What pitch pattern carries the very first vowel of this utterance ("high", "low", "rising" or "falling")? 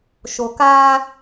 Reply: low